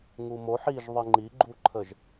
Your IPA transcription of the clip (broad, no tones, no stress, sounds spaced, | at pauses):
ŋ u m o ħ i ʒ ðˤ ɨ ŋ͡ǃ i ɡ͡ǃ u ǃʰ ə ʒ